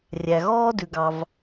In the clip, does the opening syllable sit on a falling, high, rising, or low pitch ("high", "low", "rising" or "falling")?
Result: low